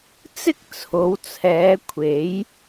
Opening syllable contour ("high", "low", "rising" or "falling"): high